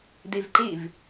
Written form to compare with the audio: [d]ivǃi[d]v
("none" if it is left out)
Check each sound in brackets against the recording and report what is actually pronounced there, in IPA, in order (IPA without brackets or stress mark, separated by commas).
d, none